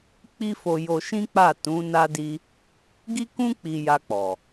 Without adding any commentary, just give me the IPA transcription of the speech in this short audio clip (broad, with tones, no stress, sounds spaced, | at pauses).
k͡p i˦ f o˧ j o˧ ʃ ĩ˦ k͡p a˦˨ t ũ˨˦ n a˦ d i˦ | ɡ i˦ k ũ˦ k͡p i˧ j a˧ k͡p ɔ˨